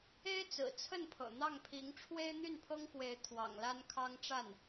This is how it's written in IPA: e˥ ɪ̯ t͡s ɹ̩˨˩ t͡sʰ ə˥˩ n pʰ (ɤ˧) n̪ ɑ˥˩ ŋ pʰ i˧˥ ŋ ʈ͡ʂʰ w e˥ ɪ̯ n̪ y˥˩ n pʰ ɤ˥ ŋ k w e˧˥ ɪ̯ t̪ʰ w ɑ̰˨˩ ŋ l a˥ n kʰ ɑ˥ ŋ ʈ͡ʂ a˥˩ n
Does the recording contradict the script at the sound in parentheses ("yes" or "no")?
yes